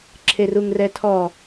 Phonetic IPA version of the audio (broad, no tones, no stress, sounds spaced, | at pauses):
ǁʰ e r u ŋ r ɛ tʰ ɔ